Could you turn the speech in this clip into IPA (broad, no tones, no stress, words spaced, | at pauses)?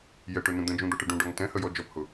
jɛʈʊnũ d̪ə̃d͡ʒũd̪ɔʈə ɖũɖɒŋ tɛ̃həjɔ d͡ʒɔphʊ